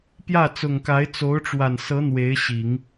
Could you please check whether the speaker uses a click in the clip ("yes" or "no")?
no